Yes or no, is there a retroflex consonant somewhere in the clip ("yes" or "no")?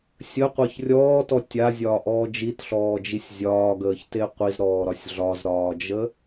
no